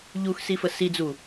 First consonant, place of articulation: palatal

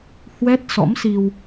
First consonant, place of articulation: glottal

